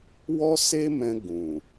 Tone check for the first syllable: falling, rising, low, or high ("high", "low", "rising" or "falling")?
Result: high